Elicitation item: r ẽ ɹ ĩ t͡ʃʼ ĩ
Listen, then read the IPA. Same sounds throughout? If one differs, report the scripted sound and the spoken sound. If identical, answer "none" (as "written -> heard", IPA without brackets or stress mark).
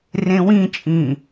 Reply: ɹ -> w